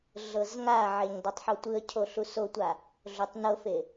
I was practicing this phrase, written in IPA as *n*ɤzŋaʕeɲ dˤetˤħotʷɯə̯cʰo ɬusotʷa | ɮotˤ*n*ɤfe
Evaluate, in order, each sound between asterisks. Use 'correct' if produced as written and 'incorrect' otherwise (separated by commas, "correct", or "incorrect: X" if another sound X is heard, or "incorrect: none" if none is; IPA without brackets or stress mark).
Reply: incorrect: ɮ, correct